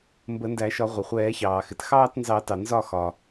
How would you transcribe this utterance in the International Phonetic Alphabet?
m b ə˨˩˦ n d æ˨˩˦ ʃ ɒ˨˩˦ ʁʷ ə˩ χʷ ɛː˨˩˦ ç ɑː˩ x ɪ˩ t x ɑː˥˧ t n z ɑ˨˩˦ t ɑ˩ n z ɒ˥˩ x ɒ˩

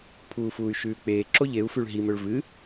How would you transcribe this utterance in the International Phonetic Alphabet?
pʰ uː f uː y̯ ʃ ʉː k͡p eː ǁ o ʎ e u̯ f ʉ ɭ ɦ i m ɵ ɭ v ɨ

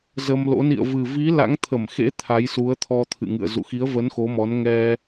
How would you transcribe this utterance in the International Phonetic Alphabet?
z ə˧ m l o̰˧˥ n ḭ˧˨ ə̯ v ɨ˨˩ v i˨˦ l a̰˧˥ ŋ t̪ʰ ə˧˩ m x ḛ˧˥ t̪ʰ a˨˦ j s u˨˦ ə̯ t̪ʰ ɔ˧ t̪ʰ ɨ̰˧˨ ŋ ɨ̰˧˨ ə̯ z ṵ˧˨ x i˨˦ ə̯ v ə˨˦ n x o˨˦ m ɔ˨˦ n ŋ ɛ˧

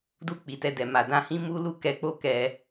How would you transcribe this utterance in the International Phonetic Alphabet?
d u˧ k͡p i˨ t ɛ˧ d ɛ˨ m a˨ d ã˧ h ĩ˦ m u˦ l u˦ k ɛ˧ k͡p o˦ k ɛ˧

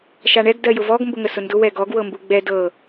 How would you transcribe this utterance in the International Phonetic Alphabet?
ʃ a ɳ ɛ ɡ d ɜ j ʊ v ɔ ɡ m b ʊ ŋ ə s ʊ n d ʊ w ɛ ɡ ɔ ɡ w ɤ m b u ɡ͡b ɛ d ɤ

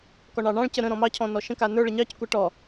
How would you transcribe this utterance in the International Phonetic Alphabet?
k ɔ ɳ ɑ ɳ ɑ̃ ɭ c ə ɾ ə̃ ɾ ɔ̃ m ɑ cʰ ɔ̃ n ɔ ʃ ə̃ k a n ə˞ ɭ ə ɲ ɑ c kʷ a ʈ ɔ

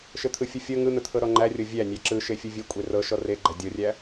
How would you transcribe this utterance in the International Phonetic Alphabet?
ʃ ɘ t̪ʰ ɯ fʲ ɯ fʲ ɤ ŋ ɯ n̪ ə t̪ʰ ɤ ɾ ɔ ŋ͡ǃ æ rʲ ɤ vʲ æ nʲ æ ǁ ɯ ʃ e fʲ ɯ vʲ ɘ kʷʼ e r ɤ ʃ ɔ r e ɡ͡ǃ æ dʲ ɤ rʲ æ

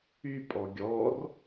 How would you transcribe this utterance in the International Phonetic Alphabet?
y pʼ ɔ ɡʲ ɔ r

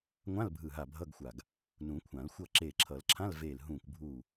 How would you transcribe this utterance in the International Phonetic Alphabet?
ŋʷ ã˧˥˧ l bʱ ɯ˧˩ ɦ a˧˩ bʱ ʌ˧˥˧ ɡ xʷ a˧˩ ɡ | n ũ˨˩˦ kʷʰ ã˨˩˦ l xʷ ʌ˥˨ ǁ eː˧˩ ǁʰ ʌ˨˩˦ l ǁʰ ã˧˥˧ l v eː˧˩ l ɦ ũː˧˩ kʷ bʱ uː˧˩

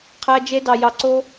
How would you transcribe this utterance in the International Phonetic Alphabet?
qʰ æ˧ d͡ʒ e˧ d ɑ˨ j ɑ˨ ǀ o˧

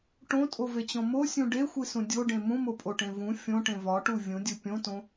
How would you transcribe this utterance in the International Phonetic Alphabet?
ʈ õ tʼ o v e t͡ɕ õ m o sʲ ũ ɖ e xʷ i s ũ dʲ o ɖ ẽ m ũ m o pʼ o ʈ ẽ v ũ fʲ õ ʈ ẽ v ɒ ʈ u vʲ ũ dʲ u pʲ õ t õ

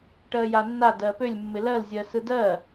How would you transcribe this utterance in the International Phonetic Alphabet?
ʈ ɜ j a nː a d ɜ p ø lʲ mː ɪ l ɜ l zʲ ɜ s ɯ d ɜ

